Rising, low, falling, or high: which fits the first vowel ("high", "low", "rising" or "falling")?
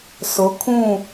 rising